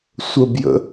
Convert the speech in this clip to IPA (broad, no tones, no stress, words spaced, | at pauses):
sʷəbjə̰